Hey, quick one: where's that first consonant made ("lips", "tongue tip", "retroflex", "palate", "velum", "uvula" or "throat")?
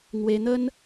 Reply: velum